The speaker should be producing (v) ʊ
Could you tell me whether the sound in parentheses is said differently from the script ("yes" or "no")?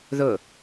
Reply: yes